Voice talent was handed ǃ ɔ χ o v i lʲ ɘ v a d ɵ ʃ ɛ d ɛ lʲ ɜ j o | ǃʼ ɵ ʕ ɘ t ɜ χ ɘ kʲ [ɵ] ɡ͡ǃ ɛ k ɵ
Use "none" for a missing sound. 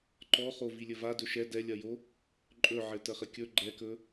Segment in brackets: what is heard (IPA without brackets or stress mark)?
ɵ